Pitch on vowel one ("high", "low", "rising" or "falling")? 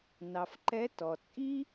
low